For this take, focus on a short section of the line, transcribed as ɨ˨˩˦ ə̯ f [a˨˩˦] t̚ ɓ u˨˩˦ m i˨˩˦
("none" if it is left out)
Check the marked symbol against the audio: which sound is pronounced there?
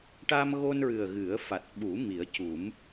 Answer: a˨˩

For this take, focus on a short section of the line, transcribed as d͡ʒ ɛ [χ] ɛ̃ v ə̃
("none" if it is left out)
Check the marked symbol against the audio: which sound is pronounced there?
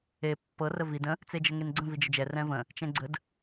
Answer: r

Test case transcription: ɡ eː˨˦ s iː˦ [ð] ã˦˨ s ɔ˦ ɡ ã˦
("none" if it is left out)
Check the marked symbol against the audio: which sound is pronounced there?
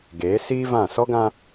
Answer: v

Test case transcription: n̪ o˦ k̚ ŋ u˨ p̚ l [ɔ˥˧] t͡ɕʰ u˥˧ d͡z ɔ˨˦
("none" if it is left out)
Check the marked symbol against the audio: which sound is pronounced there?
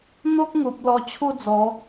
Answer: ɔ˧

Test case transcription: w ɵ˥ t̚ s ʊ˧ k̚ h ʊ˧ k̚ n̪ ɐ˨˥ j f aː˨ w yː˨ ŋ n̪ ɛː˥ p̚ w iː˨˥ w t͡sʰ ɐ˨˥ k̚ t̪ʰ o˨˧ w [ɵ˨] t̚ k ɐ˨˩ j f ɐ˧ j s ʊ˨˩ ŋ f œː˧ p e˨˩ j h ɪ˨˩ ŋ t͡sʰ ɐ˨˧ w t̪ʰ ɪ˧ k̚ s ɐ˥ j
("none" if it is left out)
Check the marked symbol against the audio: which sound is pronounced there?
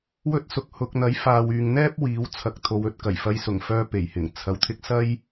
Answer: ɵ˨˥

